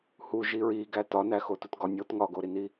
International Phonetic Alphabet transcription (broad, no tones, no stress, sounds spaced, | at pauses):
h u ʒ i ɹ i ɡ æ t ɒ n æ x o t u t ɡ ɒ nʲ o t ŋ ɒ ɡ o ɾ i n i